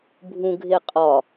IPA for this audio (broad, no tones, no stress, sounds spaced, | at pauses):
bʱ ũ ɡʱ e qʼ ɒ